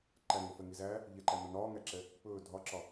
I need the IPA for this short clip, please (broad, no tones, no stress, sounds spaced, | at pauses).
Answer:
ǃ æ ŋ ɵ f ɛ ŋ i z æ | ʎ ɛ ǃ æ n ɒ n ɒː ŋ æ ǁ ɛ | p ɵː dʱ ɒ ǁ ɒ